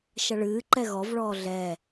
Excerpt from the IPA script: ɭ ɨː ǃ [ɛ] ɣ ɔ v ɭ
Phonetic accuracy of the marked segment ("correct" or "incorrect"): correct